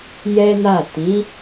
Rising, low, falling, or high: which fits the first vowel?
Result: high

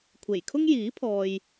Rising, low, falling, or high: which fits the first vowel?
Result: low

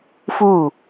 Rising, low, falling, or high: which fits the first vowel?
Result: falling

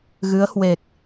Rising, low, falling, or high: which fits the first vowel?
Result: rising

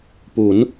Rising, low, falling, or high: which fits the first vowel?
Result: rising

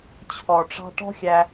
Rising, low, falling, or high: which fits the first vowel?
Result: low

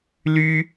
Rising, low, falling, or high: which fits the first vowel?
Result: high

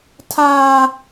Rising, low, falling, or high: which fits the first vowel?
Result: high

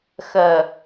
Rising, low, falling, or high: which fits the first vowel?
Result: low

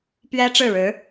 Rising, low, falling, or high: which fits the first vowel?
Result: high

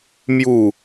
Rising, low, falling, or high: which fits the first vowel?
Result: falling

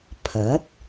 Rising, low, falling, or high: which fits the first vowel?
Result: rising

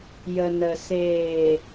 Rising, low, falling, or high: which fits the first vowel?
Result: low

